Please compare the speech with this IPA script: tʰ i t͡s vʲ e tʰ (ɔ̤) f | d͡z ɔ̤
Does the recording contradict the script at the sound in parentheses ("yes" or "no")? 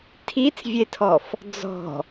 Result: yes